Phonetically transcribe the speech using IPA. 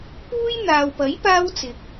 p uː˥ j n̪ aː˨ w p ɐ˨˥ j p aː˥ w t͡s ɪ˨ k̚

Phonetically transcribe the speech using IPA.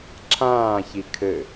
ǁʰ ãː ç i kʰ ɘ

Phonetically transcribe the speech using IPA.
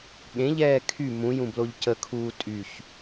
ɠ ẽ ʎ ɛː kʰ y m ũ j ũ b l o ʎ c ə kʰ uː tʼ y ç

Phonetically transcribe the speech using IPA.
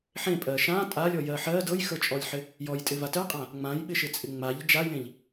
ħ ẽ pʼ ɜ ʃ ã tʼ a lʲ ɔ j ɜ ħ ɜ d ɤ j x ə˞ t͡ʃʼ ɔ lʲ ħ ɪ | j ɔ j tʼ ɪ v a t ɜ qʼ ã | ŋ͡m ã j ɓ ɪ ʃ ɪ t͡sʼ ɪ ŋ͡m a ʎ d͡ʒ a j ẽ ʎ

